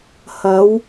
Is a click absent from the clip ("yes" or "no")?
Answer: yes